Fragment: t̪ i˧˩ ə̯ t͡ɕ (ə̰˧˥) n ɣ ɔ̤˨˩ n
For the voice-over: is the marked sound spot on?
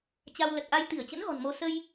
yes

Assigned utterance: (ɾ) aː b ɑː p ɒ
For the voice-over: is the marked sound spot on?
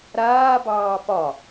yes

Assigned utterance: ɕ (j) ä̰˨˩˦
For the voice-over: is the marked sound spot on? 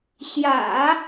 yes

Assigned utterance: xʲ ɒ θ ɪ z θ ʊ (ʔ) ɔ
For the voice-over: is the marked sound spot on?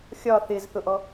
yes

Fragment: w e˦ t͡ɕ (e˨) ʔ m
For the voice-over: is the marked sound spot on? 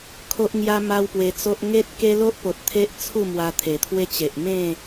yes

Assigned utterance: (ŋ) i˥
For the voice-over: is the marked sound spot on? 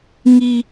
yes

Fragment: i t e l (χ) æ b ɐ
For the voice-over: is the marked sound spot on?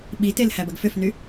no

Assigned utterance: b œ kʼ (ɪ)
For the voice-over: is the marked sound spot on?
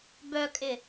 yes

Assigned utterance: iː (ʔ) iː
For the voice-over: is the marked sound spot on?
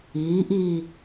yes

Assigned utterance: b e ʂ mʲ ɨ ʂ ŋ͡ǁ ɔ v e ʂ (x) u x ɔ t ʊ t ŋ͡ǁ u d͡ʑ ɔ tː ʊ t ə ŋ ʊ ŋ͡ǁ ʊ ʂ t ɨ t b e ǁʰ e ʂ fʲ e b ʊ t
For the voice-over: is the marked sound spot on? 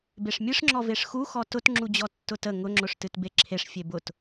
yes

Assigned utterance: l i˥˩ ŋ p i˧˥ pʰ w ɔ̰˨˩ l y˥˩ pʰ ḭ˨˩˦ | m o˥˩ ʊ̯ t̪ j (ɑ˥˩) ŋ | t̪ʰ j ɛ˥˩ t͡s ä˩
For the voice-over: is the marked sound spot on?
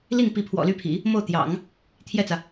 no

